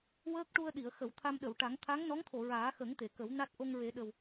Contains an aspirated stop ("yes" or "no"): yes